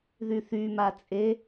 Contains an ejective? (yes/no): yes